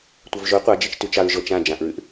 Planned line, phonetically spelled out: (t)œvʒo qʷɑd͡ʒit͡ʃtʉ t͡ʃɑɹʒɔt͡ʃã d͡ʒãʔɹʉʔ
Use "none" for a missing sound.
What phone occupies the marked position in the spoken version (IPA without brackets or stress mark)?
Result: tʷ